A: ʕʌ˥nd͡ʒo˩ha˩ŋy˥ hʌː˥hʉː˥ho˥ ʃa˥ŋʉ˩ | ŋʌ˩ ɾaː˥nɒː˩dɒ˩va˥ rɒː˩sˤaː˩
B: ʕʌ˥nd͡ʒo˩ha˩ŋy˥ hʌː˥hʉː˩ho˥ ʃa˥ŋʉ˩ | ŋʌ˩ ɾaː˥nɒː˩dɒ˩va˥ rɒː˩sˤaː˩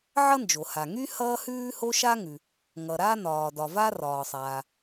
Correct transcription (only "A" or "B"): A